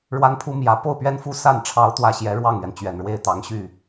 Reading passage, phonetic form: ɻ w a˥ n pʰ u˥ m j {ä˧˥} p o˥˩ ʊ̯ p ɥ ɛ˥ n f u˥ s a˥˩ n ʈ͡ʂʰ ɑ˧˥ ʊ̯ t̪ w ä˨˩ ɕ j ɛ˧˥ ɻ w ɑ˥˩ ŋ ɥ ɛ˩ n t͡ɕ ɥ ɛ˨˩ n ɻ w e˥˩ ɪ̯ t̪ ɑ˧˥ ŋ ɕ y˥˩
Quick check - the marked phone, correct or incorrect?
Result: correct